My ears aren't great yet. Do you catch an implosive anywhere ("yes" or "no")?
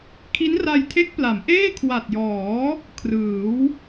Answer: no